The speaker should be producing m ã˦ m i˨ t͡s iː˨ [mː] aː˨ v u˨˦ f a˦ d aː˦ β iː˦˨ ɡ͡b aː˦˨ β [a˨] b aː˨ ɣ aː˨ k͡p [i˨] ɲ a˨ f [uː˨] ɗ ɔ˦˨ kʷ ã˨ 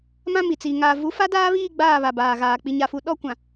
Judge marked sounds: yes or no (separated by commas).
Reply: no, yes, yes, no